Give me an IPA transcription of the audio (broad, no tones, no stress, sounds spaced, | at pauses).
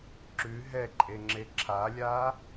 ǁ ʉ ɦ ɛ ǃʼ e ŋ͡ǁ e ǁʰ a lʲ a